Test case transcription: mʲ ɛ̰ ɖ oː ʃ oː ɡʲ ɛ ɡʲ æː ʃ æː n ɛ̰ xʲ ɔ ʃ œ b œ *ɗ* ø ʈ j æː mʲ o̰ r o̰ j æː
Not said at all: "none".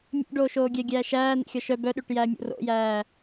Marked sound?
ɗ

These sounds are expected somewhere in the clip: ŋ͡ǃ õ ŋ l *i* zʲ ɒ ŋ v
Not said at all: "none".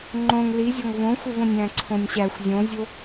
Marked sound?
i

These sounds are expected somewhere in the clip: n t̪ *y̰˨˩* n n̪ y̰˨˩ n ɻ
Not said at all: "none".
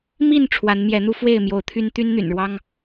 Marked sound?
y˦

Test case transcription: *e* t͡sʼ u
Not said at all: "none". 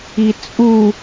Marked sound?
i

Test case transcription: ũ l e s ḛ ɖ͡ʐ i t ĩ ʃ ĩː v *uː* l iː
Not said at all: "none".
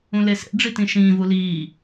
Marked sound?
u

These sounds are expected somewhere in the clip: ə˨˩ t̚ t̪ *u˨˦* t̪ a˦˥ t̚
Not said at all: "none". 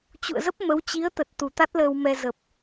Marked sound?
u˨˩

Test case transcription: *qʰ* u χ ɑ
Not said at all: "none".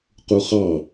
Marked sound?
q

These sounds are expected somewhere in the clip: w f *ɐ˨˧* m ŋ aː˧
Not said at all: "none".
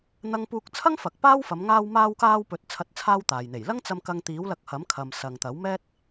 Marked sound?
ɐ˨˧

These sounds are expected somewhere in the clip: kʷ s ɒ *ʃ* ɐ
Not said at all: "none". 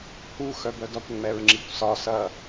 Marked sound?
s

